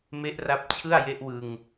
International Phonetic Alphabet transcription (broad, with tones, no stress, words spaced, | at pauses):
me˦˥ʔra˦˥p̚t͡ɕʰɯ˥˩a̯ je˦˥ʔwɯ˧ŋ